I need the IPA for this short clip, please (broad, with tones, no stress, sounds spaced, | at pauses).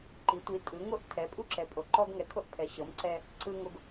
ǃ i˩˧ tʷ i˩˧ tʼ ɯ˩˧ ŋ o˧ ʔ tʰ ɛ˩˧ pʼ u˧ ǁ ɛ˩˧ pʼ o˩˧ ǃ ɔ˧ ɡ ŋ ɛ˩˧ kʰ o˧ ʔ pʰ ɛ˩˧ ɕ ɤ˩˧ m ǀ ɛ˧ | ǀ ɯ˧ ŋ o˧ ɡ